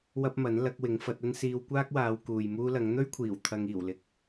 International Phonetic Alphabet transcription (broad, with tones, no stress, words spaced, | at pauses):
wɐ˥p̚mɐ˨˥n lɐ˨˥k̚wɪ˨˥ŋfɐ˨˥t̚ɐ˥n siː˧wkʷaː˥k̚waː˨˧w kuː˨jmuː˥lɐ˨˥ŋ n̪ɵ˥ɥkʷʰiː˨˩w t̪ʰɐ˧ŋiː˨˩wlɪ˧k̚